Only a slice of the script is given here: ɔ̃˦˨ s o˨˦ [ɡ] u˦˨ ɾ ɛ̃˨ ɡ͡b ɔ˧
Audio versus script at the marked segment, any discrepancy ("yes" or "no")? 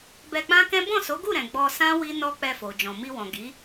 no